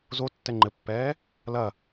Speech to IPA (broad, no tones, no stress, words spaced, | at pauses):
zo tːɛŋ͡ǃɘpːɛː | lɐ